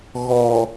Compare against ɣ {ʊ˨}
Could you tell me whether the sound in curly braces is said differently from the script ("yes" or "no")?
yes